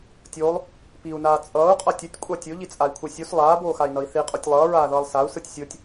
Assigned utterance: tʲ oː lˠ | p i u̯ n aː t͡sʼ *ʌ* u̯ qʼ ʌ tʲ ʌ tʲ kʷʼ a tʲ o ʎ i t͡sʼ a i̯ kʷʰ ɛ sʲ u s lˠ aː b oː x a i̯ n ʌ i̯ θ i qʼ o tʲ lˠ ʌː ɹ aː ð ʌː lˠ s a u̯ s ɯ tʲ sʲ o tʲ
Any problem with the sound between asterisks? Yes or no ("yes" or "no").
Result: yes